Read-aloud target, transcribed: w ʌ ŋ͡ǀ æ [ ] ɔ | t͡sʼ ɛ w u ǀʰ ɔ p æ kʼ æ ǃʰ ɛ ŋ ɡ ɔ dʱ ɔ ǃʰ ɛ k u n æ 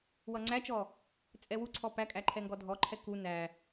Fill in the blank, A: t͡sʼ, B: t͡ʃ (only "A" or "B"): B